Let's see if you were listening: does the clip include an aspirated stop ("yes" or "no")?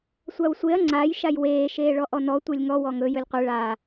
no